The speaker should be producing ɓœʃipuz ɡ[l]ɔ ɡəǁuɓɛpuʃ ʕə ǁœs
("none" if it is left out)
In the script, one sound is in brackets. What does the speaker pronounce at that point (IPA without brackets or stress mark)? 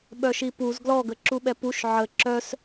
l